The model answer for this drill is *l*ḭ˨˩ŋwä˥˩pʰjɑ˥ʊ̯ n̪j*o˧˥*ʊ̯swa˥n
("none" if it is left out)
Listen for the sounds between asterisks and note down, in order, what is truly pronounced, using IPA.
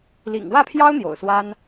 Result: l, o̰˨˩

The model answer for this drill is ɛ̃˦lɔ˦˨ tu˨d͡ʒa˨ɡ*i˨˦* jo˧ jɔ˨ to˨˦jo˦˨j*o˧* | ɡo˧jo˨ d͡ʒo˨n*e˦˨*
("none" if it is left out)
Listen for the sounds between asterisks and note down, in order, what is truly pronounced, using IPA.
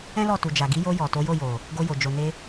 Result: i˨˦, o˨, e˧

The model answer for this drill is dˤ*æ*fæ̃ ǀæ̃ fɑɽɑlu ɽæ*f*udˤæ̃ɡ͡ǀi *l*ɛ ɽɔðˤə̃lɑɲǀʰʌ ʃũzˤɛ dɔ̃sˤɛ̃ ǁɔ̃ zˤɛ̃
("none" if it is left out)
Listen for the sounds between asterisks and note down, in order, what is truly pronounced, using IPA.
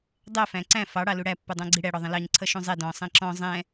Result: ɛ, pː, ɽ

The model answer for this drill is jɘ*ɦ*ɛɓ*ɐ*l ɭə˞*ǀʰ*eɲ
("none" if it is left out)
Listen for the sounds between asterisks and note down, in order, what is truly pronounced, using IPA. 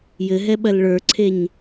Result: ɦ, ɐ, ǀʰ

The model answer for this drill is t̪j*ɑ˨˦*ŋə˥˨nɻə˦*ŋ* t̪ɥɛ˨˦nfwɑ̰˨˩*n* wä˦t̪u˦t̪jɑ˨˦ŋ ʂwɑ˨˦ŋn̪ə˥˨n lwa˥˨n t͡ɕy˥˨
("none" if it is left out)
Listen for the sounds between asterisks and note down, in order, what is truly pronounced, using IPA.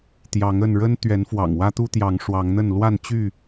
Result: ɑ˨˦, n, ŋ

